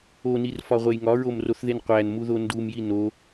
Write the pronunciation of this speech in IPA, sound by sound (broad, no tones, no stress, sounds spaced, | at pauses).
o n i r f ɒ ʁʷ e j ŋ ɒ ɹ o m r o θ ð e n qʷ æ n m u ð o n d u m j i n o